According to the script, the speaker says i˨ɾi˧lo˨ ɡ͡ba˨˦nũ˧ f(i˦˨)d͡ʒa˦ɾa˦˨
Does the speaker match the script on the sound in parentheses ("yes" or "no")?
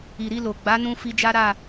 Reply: no